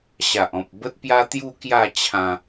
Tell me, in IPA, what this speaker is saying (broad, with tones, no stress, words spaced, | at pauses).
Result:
ɕa˨ʔɔ̃˨p̚bə˦t̚pja˦ t̪ju˦kja˥˧t͡ɕʰã˧